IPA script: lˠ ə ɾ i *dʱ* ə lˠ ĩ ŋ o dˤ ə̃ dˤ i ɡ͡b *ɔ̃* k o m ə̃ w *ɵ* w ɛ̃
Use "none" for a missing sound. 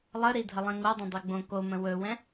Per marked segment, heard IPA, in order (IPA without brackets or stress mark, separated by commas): dʱ, õ, ɵ